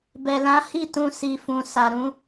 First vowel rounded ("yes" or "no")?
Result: no